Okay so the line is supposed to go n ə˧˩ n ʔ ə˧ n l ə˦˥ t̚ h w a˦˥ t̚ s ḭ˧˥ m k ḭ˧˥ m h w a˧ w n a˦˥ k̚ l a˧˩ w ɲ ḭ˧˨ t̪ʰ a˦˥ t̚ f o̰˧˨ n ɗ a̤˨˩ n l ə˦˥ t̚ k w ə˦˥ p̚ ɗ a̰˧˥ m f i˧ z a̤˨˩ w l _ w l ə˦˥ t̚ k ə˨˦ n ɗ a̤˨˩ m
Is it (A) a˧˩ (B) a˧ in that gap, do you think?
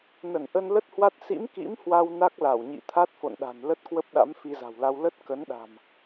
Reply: B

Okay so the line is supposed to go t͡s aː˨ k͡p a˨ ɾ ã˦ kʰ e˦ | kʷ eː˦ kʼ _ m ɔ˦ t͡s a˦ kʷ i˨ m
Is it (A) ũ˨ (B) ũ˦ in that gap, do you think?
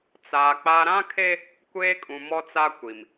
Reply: A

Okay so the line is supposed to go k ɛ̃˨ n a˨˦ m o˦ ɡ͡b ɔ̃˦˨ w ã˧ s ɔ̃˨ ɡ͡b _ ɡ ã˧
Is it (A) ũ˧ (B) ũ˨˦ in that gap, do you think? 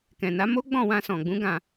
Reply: B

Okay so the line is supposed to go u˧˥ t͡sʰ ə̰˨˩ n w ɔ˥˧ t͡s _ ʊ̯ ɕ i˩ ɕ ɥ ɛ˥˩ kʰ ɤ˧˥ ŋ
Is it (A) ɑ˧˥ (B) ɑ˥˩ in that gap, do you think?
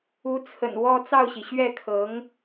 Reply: B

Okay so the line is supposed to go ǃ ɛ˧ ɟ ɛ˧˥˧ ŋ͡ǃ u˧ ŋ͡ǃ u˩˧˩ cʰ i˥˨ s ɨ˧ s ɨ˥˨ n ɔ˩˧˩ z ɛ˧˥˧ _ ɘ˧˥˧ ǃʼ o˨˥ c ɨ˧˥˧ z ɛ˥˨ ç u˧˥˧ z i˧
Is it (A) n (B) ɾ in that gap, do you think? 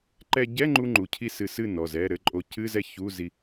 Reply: B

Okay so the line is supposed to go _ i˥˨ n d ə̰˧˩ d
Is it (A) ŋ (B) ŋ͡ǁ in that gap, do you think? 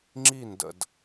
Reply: B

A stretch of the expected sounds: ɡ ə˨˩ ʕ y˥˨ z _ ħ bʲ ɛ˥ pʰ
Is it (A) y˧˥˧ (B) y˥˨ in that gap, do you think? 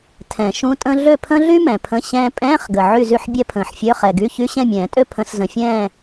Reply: B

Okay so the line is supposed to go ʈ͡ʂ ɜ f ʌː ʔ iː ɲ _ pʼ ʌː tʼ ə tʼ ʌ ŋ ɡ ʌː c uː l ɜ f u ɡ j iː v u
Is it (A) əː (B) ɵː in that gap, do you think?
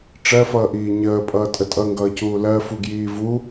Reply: A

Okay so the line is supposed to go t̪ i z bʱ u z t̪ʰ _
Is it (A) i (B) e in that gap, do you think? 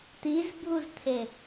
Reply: B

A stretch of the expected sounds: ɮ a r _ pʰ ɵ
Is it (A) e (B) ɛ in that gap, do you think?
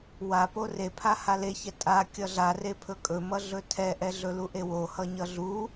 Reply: A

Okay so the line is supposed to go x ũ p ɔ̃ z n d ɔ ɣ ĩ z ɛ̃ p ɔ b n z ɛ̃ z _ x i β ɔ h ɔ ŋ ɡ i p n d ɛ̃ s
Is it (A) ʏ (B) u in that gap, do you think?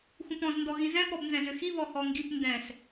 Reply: A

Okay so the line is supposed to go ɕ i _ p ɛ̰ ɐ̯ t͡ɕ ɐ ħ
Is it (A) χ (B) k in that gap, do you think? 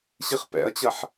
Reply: A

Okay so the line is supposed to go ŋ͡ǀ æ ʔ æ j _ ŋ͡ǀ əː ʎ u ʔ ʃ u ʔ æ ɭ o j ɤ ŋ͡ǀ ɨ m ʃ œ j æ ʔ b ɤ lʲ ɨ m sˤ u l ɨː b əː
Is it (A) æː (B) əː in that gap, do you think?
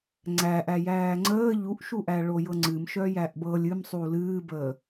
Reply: A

